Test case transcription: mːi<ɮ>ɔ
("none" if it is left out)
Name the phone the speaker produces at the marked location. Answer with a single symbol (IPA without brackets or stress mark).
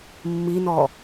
n